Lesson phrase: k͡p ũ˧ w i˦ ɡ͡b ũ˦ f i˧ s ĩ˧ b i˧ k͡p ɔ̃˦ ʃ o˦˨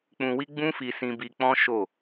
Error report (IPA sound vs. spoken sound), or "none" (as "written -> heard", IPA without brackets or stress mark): none